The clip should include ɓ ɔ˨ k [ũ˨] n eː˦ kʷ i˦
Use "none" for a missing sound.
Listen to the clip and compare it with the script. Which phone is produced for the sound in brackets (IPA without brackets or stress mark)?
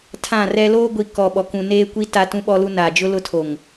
ũ˨